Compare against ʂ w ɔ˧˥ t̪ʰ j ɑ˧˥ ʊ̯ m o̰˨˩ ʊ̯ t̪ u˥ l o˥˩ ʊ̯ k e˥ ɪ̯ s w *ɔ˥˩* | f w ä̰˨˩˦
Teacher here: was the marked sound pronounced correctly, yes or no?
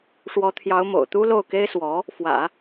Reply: no